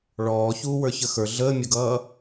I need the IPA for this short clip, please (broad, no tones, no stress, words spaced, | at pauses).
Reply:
ɭɔːçuːwə˞ çəxə˞ ɮəːmʲʊɡʌː